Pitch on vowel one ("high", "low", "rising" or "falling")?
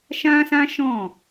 high